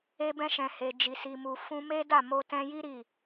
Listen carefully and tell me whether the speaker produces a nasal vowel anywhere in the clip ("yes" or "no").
yes